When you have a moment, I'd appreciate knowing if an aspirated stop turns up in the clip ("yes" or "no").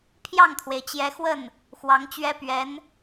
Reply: yes